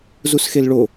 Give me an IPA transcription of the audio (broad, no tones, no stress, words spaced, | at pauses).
zusxelɭo